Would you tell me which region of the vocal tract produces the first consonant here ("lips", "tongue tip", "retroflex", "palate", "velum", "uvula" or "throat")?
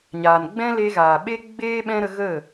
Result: palate